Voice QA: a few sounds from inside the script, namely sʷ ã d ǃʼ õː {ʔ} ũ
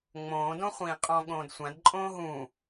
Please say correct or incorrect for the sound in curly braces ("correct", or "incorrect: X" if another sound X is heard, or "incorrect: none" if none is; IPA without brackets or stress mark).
incorrect: ɦ